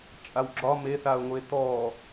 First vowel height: low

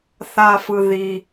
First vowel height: low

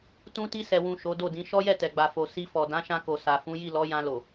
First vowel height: high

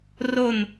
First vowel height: mid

